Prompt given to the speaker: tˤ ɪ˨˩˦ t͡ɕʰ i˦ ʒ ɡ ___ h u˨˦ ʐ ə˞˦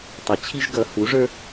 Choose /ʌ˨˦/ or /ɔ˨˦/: ʌ˨˦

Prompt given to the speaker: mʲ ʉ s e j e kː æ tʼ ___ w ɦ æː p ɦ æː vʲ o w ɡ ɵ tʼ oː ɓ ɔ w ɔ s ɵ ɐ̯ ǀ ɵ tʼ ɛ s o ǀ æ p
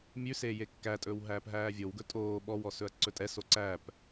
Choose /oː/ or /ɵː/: ɵː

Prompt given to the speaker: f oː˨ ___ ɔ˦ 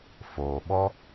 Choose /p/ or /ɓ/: ɓ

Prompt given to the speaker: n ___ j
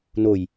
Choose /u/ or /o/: o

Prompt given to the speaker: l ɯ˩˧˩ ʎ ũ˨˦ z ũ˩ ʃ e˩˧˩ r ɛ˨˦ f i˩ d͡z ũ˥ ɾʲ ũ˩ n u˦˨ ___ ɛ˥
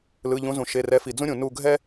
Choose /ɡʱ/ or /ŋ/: ɡʱ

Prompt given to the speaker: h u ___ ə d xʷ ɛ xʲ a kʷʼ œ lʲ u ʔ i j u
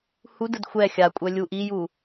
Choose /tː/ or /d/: d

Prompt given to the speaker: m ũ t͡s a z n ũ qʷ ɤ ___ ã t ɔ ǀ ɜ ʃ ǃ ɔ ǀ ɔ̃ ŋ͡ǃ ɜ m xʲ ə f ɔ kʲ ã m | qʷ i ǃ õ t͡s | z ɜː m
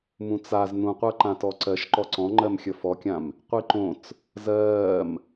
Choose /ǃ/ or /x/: ǃ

